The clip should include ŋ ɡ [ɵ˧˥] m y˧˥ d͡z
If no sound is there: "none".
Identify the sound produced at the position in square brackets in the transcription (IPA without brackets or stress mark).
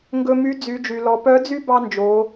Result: ɵ˧